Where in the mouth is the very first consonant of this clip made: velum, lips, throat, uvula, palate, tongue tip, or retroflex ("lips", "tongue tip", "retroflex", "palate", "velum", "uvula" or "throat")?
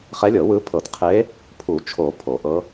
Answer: uvula